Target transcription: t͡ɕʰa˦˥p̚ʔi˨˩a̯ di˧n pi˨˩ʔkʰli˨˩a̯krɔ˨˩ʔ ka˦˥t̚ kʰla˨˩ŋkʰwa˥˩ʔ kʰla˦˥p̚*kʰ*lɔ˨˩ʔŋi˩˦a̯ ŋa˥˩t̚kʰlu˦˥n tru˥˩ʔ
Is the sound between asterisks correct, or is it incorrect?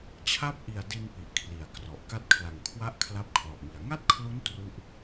correct